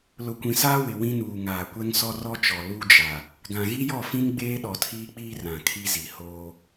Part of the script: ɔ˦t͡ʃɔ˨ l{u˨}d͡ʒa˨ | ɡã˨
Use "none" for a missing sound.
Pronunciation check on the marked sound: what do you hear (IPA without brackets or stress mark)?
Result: u˦